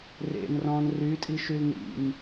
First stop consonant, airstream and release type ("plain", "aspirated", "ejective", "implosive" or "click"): ejective